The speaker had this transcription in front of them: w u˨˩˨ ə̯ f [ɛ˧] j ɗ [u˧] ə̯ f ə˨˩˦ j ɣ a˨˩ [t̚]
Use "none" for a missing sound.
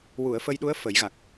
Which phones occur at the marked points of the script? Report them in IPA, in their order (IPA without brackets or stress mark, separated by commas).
ə˧, u˧˥, k̚